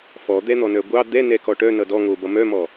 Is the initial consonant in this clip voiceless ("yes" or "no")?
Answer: yes